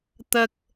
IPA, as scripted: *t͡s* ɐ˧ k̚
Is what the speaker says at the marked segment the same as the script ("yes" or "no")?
no